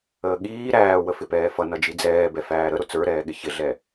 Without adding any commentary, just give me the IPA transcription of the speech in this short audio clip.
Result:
əː ɠ iː ɾ æː w ə f ɪ p ɛː f ʌ n ʌ d͡ʒ i d͡z ɛː b ɛ f æː ɾ ə ɾ ʊ t͡s ə˞ ɾ ɛː ɠ ɪ ç ɪ ɮ ɛ

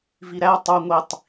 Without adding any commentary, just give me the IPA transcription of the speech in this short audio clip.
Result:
v i ɾ æ tˤ u ŋʷ i tˤ

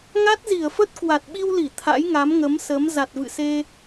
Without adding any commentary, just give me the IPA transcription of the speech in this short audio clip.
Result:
ŋ a˦˥ t̚ z i˧˩ ə̯ f ə˦˥ t̚ k w a˨˩ t̚ ɓ i˧ w l i˧˩ t̪ʰ a̰˧˥ j ŋ a˨˦ m ŋ ə˨˦ m s ə˨˦ m z a˨˩ t̚ v ɨ̰˧˨ s e˧

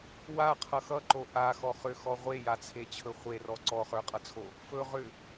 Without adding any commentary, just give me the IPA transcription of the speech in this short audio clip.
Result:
w a qʰ ʌ x ʌ ǃ o ʔ a x ɔ χ ʏ x ɔ ʁʷ e j a t͡sʰ e t͡ɕʰ ɵ χʷ e r ɔ ǀ ɔ χ ə˞ qʼ ʌ t͡sʰ o | f ɵ ʁ ʏ

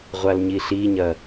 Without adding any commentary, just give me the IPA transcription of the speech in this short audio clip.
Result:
ʁʷ a l ɲ i ɬ i ɲ ɐ

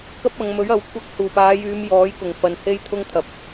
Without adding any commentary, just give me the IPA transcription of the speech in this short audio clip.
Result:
k ɐ˥ p̚ ɐ˨˧ ŋ m ɵ˨˥ ɥ ɐ˨˥ w kʷʰ ɐ˧ k̚ h uː˨˩ p aː˨˧ j yː˨˧ m j ɔː˨˥ j k ʊ˨˩ ŋ f ɐ˨˧ n h e˥ j t̪ʰ ʊ˥ ŋ t̪ʰ ɐ˨ p̚

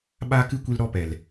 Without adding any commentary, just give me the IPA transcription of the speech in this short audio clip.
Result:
ɓ aː˦ k ɨ˦ kʷ i˧ l ɾ ɔ˦ p ɛ˨ l

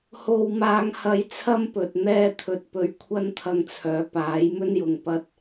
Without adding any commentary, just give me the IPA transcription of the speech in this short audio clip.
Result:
h o˥ w m aː˥ ŋ h ɐ˥ j t͡sʰ ɐ˥ m p ɵ˨ t̚ n̪ ɛː˥ t̪ʰ ɵ˧ t̚ p ɵ˧ ɥ kʷʰ ɐ˥ n t̪ʰ ɐ˧ ŋ t͡sʰ œː˨˧ p aː˨˥ j m ɵ˥ n j ʊ˨ ŋ p ɐ˧ t̚

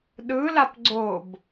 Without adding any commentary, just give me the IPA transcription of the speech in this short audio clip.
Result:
ɗ ɯ l a p ɡ͡ǀ o b

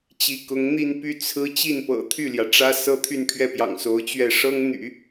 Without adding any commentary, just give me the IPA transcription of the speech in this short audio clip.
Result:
t͡ɕ i˧˥ k ʊ˧˥ ŋ n̪ i˥˧ n p y˥˩ t͡sʰ ɹ̩˥ t͡ɕ i˥˩ n p ɤ̰˨˩ t̪ʰ y˥˩ l j ä˩ ʈ͡ʂ ä˥ s ɤ˥ t̪ʰ y˥˧ n pʰ ɥ ɛ˥˩ p j ɑ̰˨˩ ŋ s o˧˥ ʊ̯ t͡ɕ ɥ ɛ˥˩ ʂ ɤ˥ ŋ n̪ y̰˨˩˦

